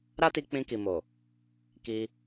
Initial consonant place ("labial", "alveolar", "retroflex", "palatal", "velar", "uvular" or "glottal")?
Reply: alveolar